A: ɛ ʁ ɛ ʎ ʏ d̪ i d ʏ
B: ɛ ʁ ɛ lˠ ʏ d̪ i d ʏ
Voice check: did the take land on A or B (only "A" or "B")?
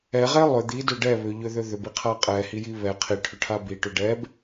B